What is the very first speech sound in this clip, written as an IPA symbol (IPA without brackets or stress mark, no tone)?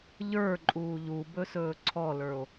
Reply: ʎ